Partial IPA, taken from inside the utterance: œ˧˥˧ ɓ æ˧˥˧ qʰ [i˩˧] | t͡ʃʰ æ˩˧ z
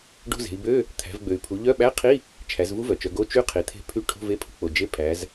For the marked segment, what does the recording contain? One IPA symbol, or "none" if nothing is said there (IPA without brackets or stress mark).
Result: i˧˥˧